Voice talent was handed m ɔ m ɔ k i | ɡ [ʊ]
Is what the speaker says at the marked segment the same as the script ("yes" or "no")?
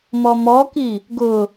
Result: yes